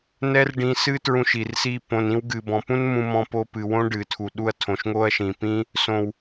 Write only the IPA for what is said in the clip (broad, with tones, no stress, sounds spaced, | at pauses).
n ɛ˦ r ɖ ĩ˧ s ɨ˦ t ɹ ũ˧ ʃ i˨ r s i˧ p õ˨ n ĩ˧ w ɡ ɨ˨ b ɔ̃˨ p ũ˦ n m ũ˧ m ɔ̃˧ p o˧ p ɨ˨ w õ˦ ɖ ɨ˨ tʰ u˨ ɗ u˧ ɐ̯ tʰ õ˨ ʃ ŋ o˦ ɐ̯ ʃ ĩ˨ p ĩ˦ | s õ˨ w